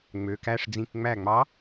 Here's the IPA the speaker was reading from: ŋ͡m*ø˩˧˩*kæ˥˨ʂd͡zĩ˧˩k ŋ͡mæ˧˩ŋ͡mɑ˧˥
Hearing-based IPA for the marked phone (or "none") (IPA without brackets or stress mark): ø˩˧˩